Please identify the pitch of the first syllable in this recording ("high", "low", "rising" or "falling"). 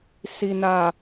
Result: low